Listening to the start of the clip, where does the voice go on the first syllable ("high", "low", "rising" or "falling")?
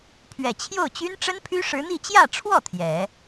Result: low